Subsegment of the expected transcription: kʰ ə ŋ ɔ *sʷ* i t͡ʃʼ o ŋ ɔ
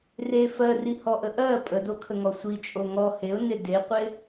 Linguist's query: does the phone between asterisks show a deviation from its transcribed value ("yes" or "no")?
no